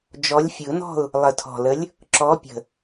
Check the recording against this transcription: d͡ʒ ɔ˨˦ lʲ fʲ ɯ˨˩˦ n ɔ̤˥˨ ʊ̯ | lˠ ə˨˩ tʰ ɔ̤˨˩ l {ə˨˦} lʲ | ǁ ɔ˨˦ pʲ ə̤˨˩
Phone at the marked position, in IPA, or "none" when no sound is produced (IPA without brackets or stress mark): ə˨˦